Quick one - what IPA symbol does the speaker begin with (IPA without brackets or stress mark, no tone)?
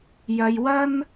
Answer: j